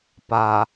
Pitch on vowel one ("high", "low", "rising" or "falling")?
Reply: low